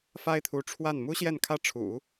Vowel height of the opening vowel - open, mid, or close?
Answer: open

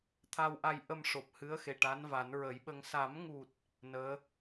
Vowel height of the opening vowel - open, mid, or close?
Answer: open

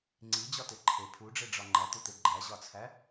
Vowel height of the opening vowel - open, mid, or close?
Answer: close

